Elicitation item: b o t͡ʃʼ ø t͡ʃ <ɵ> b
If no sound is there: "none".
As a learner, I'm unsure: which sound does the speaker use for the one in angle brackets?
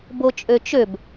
ø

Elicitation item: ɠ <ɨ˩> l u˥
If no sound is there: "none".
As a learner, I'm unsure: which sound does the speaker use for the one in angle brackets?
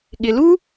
ɪ˩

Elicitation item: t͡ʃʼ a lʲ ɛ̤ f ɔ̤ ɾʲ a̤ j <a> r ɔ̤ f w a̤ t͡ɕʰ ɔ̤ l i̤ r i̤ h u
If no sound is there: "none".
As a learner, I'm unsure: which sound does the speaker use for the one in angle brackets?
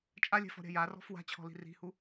a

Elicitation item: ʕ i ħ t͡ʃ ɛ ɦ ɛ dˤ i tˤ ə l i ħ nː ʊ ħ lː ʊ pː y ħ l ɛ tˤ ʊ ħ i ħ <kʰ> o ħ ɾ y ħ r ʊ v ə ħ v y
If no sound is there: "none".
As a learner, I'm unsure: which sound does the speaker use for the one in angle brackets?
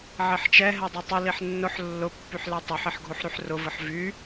ɡʱ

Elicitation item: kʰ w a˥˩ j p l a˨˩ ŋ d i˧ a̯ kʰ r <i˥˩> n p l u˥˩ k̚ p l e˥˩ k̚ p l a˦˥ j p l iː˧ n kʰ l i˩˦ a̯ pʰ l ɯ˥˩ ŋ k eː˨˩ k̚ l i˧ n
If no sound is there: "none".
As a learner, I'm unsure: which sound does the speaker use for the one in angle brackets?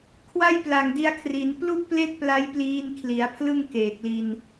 i˩˦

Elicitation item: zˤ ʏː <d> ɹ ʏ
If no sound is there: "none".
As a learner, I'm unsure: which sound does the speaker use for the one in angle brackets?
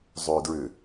d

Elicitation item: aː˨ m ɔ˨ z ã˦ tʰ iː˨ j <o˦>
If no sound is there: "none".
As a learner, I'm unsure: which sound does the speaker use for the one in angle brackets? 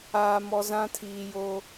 o˦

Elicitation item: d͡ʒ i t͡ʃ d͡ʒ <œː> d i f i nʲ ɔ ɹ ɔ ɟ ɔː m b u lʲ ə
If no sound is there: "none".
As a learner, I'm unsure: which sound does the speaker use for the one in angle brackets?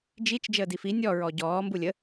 əː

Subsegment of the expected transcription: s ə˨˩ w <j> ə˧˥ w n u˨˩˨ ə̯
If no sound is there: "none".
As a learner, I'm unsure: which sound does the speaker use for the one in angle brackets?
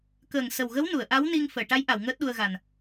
ɣ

